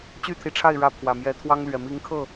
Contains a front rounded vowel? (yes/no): yes